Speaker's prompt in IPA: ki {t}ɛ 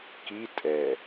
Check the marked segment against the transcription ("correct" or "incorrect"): incorrect